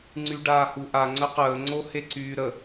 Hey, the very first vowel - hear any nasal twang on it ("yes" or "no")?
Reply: no